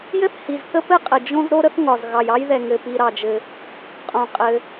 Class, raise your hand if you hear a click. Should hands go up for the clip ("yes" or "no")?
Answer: no